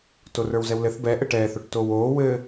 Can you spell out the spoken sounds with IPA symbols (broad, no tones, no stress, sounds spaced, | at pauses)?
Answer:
t o r ə˞ w z ɛ w l ɘ θ b ɛ ʔ ɘ ʈ ɛː θ o ʈ t oː w oː w ɘː